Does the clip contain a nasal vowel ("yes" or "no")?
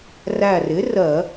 no